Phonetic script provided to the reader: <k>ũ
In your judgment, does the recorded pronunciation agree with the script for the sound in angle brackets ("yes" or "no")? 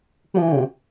no